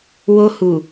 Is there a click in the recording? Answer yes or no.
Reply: no